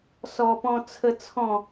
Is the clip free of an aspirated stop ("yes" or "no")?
no